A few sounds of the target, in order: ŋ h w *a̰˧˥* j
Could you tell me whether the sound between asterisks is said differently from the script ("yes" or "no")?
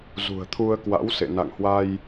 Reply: yes